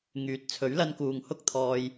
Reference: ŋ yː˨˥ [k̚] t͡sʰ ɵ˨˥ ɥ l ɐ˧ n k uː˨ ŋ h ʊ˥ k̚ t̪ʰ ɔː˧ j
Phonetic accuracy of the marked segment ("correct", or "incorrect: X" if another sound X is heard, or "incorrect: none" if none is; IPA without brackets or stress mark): incorrect: t̚